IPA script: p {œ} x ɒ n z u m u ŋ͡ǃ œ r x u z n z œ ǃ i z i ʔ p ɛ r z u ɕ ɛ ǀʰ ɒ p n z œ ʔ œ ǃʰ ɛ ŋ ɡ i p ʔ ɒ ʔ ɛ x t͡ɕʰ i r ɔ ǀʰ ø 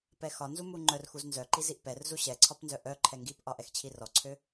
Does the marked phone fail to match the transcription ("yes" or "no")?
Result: yes